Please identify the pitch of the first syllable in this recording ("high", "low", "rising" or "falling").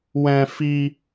high